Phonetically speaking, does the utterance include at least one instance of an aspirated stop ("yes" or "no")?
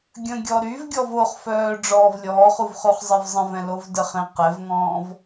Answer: no